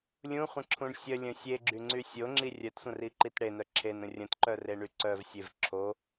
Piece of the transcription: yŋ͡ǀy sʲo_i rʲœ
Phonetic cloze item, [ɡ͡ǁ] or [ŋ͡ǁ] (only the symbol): ŋ͡ǁ